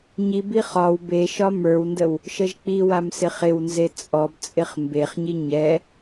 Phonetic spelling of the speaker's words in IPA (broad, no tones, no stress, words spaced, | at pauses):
ɲibi χɒw beʃɒ mə˞wndəw | ʃəʒk͡piwam sɪχɪwnze t͡sʼɔbt͡sʼɪχ mbeχɲi ɲɛ